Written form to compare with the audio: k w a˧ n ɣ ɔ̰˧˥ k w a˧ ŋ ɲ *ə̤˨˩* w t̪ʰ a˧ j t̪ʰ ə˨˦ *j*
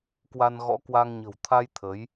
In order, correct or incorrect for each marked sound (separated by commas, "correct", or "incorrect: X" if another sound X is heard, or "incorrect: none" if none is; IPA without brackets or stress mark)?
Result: correct, correct